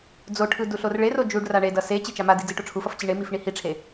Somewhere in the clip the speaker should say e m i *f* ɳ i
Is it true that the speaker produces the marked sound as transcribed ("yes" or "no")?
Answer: yes